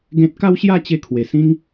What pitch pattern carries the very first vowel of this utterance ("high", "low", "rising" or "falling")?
high